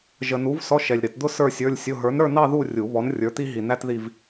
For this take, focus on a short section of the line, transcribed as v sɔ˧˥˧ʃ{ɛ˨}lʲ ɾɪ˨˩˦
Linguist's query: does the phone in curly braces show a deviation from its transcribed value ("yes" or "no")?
no